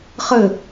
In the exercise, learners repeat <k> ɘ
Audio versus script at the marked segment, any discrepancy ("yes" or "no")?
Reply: yes